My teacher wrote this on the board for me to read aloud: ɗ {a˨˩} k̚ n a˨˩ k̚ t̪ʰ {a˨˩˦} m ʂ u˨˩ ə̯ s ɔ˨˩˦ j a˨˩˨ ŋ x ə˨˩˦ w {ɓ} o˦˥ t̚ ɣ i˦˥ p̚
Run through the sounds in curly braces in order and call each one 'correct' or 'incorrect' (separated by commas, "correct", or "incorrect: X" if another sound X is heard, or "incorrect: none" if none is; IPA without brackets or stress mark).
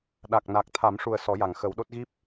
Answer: correct, correct, incorrect: ɗ